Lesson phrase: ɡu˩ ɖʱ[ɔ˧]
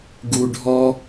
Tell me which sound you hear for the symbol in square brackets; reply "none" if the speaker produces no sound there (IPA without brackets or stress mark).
ɔ˧